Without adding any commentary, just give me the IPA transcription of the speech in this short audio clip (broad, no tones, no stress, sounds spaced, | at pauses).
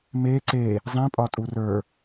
m e ǀ e | zˤ ĩ pʼ ɒ tʼ u r ə˞